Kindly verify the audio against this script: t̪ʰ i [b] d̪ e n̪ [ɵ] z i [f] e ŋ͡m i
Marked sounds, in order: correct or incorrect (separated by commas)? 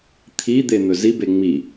incorrect, correct, incorrect